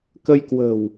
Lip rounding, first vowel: unrounded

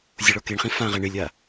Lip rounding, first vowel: rounded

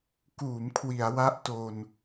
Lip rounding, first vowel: rounded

